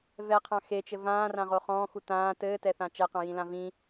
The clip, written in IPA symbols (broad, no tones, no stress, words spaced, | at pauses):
vɛqʰã xet͡ʃɘ vãːrãʁo χɔ̃ːxu tãː tɘːtɛθã t͡ʃɛqãjĩlã vĩ